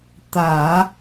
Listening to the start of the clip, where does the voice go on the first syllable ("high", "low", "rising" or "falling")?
low